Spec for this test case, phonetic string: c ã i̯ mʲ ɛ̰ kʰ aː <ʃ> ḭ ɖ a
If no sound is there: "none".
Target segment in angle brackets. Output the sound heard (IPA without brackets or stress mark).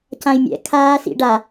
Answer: s